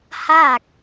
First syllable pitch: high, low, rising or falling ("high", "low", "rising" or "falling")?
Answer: falling